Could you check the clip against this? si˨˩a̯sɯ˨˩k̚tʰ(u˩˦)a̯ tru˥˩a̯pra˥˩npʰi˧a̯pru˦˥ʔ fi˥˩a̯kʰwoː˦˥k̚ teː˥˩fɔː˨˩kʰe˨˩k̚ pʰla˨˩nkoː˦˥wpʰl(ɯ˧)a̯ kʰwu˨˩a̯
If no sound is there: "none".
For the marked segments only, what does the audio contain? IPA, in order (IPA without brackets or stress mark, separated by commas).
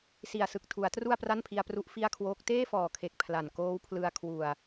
u˩˦, ɯ˧